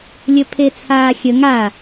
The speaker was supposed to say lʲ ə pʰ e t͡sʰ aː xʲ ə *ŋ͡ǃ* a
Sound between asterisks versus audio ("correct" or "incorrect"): incorrect